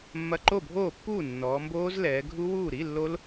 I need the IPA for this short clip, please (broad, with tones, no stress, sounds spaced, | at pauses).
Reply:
mː ɐ˧˥˧ ǃ o˥˩ bʱ oː˥˩ pː uː˥˩ nː ɔː˩˧ m b oː˦˥ z l ɛː˩˧ ɡʱ u˦˥ w uː˥˩ ɾ i˧˥˧ lː o˦˥ l